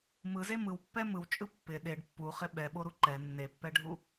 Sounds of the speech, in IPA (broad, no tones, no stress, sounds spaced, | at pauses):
m ɯ z e m ɯ w pː ɛ m ɯ w t͡ʃʼ ɯ pː ɪ ɗ e ɖ pː u χ ɪ ɓ ɛ ɓ o ɾ u ǃ ɛ nː e pː ɛ ɖʱ u